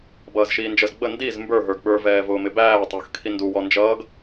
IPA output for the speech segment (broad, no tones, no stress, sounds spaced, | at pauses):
b ʌː z ʃ iː n d͡ʒ ə z ɡ͡b ə n d i z m b ə˞ ɦ ə˞ ɡ ɓ ə˞ v ɛː v ʊː m ɪ b æː tˤ ʊː x kʰ i n d u w ɔ n d͡ʒ ʌː ɡ